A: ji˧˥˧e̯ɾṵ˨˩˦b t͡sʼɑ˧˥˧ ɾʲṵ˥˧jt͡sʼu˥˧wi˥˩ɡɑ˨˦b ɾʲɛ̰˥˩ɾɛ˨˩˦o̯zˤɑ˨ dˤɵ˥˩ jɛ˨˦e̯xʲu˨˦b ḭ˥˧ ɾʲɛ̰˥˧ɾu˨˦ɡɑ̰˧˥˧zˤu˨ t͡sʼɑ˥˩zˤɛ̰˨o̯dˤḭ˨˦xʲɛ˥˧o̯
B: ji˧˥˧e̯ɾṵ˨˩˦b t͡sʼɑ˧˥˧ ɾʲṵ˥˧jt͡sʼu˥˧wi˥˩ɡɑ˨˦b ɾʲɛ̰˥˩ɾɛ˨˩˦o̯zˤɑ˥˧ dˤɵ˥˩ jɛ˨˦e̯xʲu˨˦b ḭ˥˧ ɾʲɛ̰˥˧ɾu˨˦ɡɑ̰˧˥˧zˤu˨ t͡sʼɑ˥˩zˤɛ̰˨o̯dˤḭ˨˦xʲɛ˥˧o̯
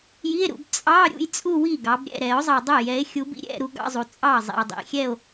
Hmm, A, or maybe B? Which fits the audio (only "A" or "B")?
A